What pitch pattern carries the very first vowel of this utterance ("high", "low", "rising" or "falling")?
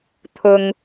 low